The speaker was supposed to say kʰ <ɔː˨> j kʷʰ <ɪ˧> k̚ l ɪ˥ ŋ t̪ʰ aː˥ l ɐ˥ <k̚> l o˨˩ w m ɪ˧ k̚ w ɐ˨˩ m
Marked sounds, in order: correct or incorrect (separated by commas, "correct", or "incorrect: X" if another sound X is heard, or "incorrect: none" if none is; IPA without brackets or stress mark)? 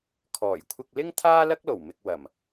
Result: incorrect: ɔː˨˩, correct, correct